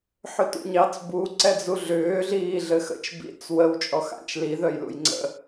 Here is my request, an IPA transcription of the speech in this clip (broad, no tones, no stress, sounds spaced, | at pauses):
ħ ʏ t ṵ ɲ ɑ t͡s b u ǀ ɛ d͡z u ɮ ʏː ɮ iː ɮ ɘ x ə̰ t͡ʃ b ḭ t͡s w ə w t͡ʃʼ ɔ x a̰ t͡ʃ l i ð œ j l ṵ j ŋ͡ǀ ə̰